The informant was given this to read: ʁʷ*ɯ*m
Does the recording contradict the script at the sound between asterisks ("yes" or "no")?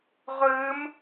no